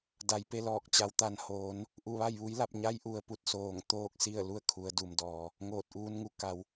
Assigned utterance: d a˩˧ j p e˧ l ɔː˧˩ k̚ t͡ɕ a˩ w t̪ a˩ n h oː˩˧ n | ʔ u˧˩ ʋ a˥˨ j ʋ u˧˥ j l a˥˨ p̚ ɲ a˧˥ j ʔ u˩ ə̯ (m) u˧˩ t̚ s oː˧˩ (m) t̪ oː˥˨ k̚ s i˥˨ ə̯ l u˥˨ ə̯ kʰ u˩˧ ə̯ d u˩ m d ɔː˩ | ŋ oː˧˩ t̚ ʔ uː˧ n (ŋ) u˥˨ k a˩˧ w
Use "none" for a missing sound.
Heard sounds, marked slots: p, ŋ, ŋ

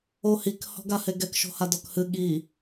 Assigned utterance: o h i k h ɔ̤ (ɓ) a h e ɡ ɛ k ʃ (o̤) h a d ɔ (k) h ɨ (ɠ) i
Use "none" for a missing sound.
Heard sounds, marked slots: ɡ, o̤, k, ɠ

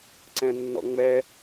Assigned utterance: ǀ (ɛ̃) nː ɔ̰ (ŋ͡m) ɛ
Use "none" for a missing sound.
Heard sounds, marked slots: ɛ̃, ŋ͡m

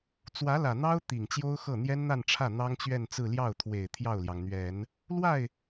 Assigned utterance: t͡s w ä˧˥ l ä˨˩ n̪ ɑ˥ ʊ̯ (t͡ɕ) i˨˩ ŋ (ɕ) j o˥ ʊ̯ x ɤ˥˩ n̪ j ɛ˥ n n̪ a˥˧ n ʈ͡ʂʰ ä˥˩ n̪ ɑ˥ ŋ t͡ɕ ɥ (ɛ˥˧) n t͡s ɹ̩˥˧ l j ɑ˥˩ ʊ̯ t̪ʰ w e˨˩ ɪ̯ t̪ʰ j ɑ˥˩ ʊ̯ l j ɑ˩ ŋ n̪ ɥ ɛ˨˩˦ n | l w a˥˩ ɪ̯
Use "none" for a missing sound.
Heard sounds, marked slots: t̪, t͡ɕ, ɛ˥˧

